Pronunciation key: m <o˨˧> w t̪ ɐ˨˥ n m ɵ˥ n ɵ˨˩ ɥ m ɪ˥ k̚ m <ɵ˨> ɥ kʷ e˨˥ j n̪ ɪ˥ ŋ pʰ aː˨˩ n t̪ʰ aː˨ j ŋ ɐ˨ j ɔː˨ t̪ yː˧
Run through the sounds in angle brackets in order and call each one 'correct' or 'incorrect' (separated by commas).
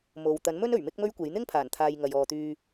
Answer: incorrect, incorrect